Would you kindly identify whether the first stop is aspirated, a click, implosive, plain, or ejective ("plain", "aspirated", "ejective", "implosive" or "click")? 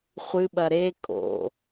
implosive